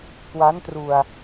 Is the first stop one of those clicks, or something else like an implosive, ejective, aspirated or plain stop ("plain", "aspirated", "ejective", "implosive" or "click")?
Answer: plain